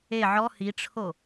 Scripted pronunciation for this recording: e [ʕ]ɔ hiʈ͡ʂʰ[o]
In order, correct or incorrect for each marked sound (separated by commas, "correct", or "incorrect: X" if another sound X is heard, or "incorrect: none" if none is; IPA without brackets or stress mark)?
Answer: correct, correct